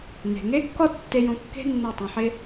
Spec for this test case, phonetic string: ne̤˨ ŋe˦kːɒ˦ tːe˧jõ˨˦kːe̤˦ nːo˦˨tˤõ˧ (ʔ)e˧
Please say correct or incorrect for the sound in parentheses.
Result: incorrect